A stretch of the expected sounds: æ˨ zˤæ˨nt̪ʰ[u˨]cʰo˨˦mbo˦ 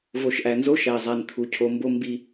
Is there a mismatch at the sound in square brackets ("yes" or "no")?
no